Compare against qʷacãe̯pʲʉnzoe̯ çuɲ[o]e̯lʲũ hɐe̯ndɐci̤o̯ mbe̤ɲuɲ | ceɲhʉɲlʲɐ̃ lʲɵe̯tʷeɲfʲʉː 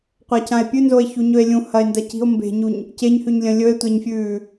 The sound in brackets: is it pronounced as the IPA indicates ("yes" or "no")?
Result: no